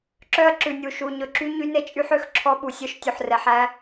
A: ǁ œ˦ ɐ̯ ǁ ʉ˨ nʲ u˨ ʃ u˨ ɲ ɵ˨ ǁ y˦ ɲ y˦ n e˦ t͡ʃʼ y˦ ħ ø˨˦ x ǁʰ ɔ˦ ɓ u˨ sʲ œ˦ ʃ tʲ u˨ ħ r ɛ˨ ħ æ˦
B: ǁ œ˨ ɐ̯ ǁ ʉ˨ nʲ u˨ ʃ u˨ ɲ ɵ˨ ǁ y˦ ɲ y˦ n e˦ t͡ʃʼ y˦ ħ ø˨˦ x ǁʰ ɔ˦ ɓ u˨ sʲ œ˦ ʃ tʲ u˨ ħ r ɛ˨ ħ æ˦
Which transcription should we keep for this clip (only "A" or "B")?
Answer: A